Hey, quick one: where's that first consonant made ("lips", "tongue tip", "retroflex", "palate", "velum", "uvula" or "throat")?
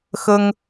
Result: velum